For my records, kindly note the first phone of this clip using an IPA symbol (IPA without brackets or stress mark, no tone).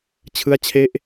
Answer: t͡ɕʰ